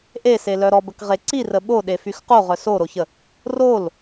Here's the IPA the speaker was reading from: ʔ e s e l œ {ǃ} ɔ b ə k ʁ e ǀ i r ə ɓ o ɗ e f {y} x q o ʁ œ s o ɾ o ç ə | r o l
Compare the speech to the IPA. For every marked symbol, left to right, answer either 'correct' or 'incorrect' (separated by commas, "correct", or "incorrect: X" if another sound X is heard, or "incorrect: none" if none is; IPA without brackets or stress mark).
incorrect: ɾ, correct